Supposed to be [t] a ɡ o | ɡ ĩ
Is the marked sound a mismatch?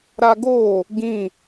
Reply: yes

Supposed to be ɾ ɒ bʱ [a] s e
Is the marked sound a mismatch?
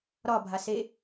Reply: no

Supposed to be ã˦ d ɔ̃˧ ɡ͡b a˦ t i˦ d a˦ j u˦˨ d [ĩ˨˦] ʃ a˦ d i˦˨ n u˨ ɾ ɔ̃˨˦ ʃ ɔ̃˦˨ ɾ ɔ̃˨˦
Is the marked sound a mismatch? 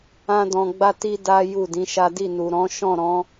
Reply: no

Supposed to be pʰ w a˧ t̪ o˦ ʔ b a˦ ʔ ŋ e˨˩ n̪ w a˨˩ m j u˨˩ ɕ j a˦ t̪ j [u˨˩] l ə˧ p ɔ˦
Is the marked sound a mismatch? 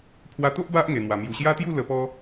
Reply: yes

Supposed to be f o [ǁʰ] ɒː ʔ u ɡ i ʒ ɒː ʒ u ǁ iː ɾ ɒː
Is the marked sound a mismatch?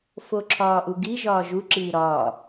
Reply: no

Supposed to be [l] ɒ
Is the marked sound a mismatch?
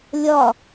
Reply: yes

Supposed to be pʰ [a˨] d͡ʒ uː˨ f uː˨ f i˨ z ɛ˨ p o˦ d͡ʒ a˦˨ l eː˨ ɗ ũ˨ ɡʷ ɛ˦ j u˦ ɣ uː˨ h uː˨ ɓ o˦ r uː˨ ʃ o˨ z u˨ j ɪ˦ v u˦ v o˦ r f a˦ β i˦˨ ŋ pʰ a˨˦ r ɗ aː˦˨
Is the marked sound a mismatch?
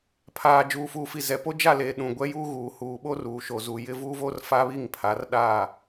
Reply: yes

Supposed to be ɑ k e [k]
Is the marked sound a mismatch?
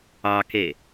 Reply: yes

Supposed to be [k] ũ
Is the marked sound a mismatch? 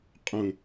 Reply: yes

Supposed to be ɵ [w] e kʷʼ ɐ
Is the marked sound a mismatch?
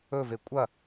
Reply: yes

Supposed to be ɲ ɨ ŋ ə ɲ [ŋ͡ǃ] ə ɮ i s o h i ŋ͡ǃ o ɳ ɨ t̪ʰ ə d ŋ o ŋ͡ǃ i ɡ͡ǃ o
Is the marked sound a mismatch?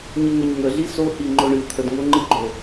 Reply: yes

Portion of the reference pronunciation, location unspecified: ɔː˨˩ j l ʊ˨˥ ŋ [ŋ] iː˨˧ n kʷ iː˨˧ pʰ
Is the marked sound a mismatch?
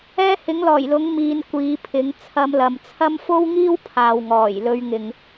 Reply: yes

